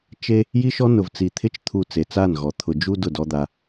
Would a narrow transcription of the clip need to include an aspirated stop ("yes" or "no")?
yes